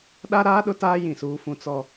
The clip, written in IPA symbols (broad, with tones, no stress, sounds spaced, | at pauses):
ɗ a˦ ɾ aː˦ ɗ ʊ˦ t aː˦ j ĩ˦˨ s uː˦ f ũ˦ t͡s ɔ˦